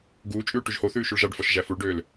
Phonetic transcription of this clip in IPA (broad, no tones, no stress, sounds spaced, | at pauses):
ɡ uː t͡ʃʼ ʉː ʈ ʉ ʒ h o θ ʉː ʃ ʉ ɭ ʒ ɑ ɖ f ɔ ʃ ʒ æ f u ɭ ɖ øː l